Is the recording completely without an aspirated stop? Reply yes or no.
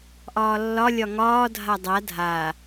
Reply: yes